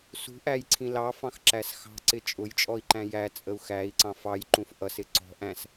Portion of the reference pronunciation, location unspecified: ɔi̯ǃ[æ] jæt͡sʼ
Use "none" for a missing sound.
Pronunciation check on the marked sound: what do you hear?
æ̃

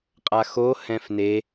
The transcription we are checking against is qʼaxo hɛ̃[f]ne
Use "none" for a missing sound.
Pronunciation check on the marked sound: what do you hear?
f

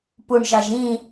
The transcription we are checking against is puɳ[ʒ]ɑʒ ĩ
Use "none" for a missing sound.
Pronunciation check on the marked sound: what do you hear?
ʒ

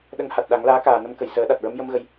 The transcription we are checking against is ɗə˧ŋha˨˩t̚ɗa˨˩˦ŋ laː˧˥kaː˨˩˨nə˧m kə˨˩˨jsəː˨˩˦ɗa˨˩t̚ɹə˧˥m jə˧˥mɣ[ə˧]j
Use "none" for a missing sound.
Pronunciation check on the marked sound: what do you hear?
ə˧˥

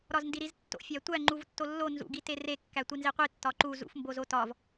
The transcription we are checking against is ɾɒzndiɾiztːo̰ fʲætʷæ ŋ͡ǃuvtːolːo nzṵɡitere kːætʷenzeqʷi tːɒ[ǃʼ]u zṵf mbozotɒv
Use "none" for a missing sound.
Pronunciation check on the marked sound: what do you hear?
ǃ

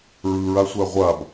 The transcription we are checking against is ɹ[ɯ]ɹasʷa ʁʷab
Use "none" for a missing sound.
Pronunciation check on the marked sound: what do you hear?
ɯ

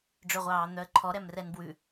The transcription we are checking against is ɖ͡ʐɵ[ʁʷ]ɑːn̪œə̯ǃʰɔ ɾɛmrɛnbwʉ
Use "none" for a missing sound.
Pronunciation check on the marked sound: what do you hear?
ʁʷ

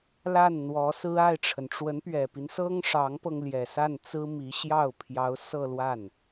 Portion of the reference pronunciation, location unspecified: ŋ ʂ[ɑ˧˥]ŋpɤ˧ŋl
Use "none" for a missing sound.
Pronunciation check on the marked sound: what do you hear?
ɑ˧˥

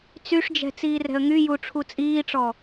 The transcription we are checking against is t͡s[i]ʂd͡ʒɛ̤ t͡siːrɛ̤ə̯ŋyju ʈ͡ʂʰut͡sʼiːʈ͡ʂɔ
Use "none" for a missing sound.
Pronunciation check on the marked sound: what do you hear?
y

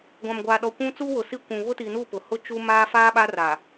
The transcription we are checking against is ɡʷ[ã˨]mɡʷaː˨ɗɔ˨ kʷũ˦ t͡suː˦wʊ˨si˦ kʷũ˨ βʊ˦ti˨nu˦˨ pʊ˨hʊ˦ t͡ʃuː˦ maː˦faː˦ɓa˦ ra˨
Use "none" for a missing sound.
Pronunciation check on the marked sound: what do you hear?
ã˨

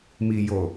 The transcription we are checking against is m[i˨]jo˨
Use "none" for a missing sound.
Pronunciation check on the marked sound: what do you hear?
i˨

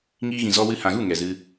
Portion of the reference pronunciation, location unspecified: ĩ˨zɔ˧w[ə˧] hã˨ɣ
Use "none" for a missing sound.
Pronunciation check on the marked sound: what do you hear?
ɨ˧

